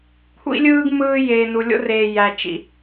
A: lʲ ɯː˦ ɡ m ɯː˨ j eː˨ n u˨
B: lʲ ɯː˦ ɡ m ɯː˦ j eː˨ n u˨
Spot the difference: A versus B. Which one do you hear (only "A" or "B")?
B